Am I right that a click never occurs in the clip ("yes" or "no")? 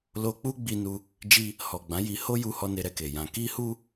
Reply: yes